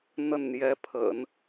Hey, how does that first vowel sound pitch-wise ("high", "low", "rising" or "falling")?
falling